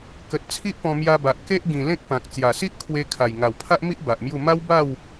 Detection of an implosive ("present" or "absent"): absent